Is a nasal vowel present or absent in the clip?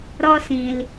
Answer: present